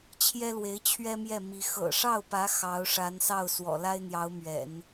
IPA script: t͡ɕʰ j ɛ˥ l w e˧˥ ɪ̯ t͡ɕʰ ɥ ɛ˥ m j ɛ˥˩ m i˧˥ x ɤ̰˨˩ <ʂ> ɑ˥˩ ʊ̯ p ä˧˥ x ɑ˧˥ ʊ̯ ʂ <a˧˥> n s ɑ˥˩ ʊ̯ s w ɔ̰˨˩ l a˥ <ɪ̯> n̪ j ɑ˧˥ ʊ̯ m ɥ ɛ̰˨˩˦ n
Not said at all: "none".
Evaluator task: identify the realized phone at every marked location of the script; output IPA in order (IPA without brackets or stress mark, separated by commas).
ʂ, a˧˥, ɪ̯